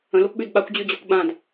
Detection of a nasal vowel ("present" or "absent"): present